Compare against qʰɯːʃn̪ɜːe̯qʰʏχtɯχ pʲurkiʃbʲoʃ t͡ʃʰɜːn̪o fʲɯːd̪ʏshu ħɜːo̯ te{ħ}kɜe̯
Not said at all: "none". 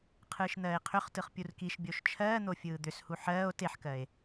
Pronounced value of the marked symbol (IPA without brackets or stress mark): ħ